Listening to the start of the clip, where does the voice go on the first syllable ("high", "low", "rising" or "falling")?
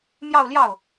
falling